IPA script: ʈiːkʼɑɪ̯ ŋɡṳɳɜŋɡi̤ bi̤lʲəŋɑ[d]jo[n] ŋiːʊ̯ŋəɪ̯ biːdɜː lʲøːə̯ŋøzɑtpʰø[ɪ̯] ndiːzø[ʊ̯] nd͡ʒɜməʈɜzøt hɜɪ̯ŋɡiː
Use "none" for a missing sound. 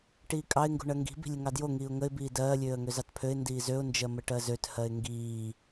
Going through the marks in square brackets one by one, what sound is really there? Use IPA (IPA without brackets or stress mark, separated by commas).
d, none, ɪ̯, ʊ̯